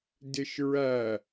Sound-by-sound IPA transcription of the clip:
d ɪ ʃ ɹ æ

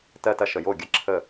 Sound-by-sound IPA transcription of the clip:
t ɜ˥˧ t ɐ˥˧ ʃ ə˨ j o˥˩ ɡʲ ɐ˥˧ ǁʰ ə˥˩

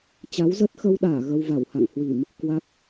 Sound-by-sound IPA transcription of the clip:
t͡ɕ a˨˦ w z ə˦˥ t̚ x ə˧ w ɗ aː˧˩ ɣ ə˧ w v a˧˩ w h a̰˧˨ ŋ h w i˧˩˨ m | k w a˦˥ k̚

